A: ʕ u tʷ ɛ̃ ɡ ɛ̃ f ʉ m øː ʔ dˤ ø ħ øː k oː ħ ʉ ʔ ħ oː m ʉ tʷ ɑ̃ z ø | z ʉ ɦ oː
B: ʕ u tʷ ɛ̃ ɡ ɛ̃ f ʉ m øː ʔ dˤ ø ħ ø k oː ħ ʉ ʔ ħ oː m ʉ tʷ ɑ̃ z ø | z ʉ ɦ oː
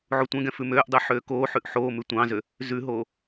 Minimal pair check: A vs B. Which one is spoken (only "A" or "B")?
A